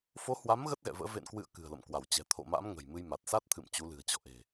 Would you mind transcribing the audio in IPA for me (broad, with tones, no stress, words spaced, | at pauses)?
fo˨˦hwa˨˦m ɣə˦˥t̚ɣɛ̰˧˨və̰ː˧˥ vḛ˧˨nkwɨ̰˧˨ə̯ kɨ̤˨˩ə̯lə̰˧˨m kwa˧˩wt͡ɕɛ̤˨˩ t̪ʰo̰˧˨ma̰˧˥m ŋə̤˨˩jmɨ˧j ma˨˩t̚ sa˦˥t̚t̪ʰɨ̰˧˨m t͡ɕu˨˦lɨ̤˨˩ə̯t͡ɕɔ̰˧˨ ʔe̤˨˩